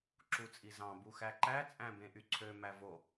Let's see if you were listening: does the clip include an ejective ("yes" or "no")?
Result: yes